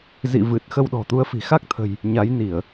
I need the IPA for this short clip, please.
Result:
z ḭ˧˨ v ɨ˨˩ t̚ x ə˧ w ɗ ɔ̤˨˩ t̪ u˨˦ ə̯ f i̤˨˩ x a˦˥ k̚ t̪ʰ ə̤˨˩ j | ɲ a˨˦ j n i˧˩˨ ə̯

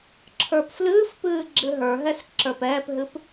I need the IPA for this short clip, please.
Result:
ǁʰ ə˞ p f l ɨː f p ɨː ɡ͡ǁ ɨ ɦ ə˞ ɦ ɛ s ǁ ə˞ p ɛː p ɦ ɨ p

